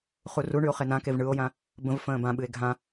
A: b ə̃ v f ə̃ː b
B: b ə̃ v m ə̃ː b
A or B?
A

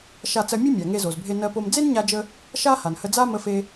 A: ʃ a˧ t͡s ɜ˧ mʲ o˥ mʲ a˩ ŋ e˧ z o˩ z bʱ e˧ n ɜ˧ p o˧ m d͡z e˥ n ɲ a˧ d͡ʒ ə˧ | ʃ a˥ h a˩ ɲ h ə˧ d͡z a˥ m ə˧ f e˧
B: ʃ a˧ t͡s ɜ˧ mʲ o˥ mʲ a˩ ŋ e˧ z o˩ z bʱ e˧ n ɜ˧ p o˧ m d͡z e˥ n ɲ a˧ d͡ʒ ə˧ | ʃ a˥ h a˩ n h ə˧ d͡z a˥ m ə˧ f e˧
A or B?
B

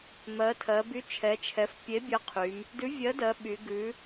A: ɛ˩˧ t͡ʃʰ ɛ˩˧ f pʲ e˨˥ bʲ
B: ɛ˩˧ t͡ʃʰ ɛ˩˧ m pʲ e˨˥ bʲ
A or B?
A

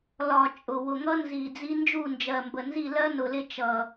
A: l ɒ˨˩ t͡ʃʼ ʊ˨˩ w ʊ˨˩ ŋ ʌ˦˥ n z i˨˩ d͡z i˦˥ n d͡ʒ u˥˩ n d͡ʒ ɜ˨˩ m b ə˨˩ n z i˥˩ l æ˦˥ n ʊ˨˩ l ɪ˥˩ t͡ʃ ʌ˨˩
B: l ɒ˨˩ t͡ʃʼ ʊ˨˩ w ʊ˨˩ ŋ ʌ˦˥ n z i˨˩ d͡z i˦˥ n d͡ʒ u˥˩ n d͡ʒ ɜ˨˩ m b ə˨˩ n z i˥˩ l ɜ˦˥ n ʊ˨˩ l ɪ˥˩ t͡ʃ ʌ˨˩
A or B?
B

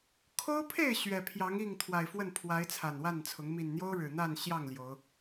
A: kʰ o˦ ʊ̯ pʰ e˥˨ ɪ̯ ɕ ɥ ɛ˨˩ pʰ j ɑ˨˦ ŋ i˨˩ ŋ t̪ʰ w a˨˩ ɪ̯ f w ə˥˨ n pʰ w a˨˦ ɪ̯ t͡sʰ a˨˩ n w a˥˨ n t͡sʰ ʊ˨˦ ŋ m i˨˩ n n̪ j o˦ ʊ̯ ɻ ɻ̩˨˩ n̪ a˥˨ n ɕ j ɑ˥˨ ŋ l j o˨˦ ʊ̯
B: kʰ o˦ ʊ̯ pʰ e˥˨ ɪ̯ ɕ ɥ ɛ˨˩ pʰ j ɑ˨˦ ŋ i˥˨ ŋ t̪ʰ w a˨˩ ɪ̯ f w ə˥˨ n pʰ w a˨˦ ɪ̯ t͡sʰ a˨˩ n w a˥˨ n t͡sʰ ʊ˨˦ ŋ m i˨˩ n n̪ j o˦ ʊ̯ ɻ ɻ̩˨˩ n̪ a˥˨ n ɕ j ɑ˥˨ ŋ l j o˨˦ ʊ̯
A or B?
B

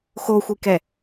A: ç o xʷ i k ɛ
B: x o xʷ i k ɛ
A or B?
B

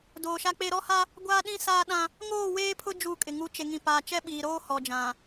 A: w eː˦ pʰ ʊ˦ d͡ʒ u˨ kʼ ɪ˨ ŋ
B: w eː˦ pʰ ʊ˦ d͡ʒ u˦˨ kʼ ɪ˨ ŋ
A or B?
B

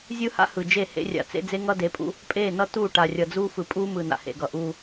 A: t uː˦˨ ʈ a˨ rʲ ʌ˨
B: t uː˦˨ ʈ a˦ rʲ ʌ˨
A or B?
A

